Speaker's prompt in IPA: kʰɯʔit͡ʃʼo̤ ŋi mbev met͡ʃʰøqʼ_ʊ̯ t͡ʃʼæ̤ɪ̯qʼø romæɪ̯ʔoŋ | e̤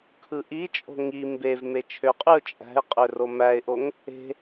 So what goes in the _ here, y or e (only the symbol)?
y